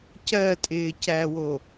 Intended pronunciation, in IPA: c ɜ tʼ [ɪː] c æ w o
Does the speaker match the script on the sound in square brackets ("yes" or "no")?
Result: yes